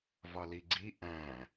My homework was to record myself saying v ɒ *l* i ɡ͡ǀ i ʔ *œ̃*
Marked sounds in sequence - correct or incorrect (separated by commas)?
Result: correct, incorrect